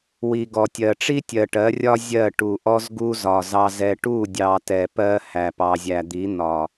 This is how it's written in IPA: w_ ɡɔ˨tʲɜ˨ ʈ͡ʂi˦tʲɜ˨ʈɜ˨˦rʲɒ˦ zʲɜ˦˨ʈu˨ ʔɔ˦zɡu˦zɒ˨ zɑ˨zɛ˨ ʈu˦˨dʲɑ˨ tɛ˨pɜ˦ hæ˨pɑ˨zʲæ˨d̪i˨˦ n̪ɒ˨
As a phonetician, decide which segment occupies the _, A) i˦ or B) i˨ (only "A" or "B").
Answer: B